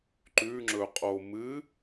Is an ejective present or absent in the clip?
present